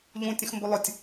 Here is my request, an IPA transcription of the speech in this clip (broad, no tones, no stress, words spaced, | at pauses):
ʎũtʲə̃xmbo lˠʊtʲ